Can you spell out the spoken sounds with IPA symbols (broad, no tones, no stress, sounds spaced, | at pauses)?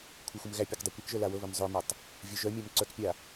kʷʰ ɤ xʷ ə m ɣ æ pʲ a k dˤ ɛ kʷ ɛ k ʒ œ l a w ɤ β œ m zˤ œ m a tˤ | vʲ œ ʒ œ mʲ æ m ǀ œ k pʲ a